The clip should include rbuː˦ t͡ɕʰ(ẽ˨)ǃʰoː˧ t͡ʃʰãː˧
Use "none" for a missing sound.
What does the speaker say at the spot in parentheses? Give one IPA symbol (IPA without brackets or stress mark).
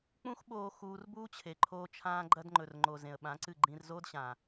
e˨